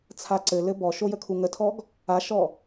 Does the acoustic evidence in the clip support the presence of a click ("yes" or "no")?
yes